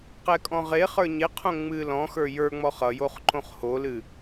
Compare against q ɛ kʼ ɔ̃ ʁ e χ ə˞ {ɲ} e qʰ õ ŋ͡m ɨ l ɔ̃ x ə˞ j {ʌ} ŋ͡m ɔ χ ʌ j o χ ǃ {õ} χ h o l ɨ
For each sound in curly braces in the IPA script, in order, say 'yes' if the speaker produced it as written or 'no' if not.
yes, no, yes

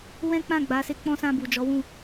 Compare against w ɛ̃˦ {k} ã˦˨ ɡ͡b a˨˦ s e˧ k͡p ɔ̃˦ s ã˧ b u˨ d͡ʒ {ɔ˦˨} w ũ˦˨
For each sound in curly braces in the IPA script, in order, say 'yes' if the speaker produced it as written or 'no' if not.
no, no

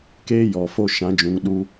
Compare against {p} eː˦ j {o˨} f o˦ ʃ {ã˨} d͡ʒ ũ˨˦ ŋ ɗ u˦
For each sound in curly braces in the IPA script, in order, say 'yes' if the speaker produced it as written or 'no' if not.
no, no, no

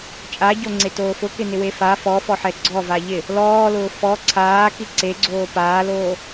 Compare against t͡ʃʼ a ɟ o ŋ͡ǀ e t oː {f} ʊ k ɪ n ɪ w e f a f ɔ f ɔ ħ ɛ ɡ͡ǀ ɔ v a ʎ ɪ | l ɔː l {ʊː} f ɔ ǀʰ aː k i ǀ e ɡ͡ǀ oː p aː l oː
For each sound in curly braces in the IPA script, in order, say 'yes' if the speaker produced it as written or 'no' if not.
yes, yes

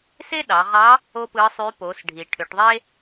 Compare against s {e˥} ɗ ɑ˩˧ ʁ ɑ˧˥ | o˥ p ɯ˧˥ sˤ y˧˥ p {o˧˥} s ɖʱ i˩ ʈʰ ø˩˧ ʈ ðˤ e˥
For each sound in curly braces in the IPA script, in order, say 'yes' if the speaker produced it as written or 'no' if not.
yes, no

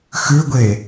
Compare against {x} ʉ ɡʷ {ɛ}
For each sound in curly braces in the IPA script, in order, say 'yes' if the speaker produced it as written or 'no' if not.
yes, no

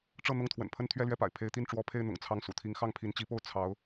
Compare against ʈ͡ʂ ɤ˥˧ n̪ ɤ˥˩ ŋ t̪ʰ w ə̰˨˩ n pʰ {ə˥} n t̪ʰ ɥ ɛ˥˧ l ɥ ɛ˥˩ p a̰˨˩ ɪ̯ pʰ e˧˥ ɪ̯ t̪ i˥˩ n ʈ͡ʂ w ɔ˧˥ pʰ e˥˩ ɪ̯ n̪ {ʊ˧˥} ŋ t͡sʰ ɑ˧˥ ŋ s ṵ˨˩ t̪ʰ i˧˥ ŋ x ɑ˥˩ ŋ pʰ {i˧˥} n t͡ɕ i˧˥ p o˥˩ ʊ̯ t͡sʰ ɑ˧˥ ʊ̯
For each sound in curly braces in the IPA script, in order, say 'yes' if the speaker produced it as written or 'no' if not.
yes, no, yes

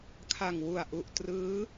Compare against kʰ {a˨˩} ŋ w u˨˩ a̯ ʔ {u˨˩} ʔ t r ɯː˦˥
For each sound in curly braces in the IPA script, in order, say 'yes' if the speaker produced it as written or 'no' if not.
yes, yes

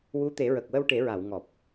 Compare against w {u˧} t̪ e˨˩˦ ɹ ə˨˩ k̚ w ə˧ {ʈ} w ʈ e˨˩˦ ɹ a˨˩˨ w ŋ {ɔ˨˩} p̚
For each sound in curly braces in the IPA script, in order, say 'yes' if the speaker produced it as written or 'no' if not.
no, no, yes

